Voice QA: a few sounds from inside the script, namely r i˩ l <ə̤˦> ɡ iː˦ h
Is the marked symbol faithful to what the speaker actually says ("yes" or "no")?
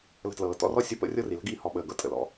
no